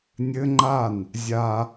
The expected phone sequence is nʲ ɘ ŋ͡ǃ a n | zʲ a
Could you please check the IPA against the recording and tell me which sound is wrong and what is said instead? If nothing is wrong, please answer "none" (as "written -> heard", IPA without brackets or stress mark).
none